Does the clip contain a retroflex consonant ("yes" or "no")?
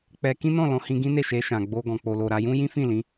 no